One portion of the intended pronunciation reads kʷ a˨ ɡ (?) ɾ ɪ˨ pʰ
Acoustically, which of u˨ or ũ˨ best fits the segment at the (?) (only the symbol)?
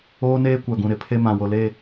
ũ˨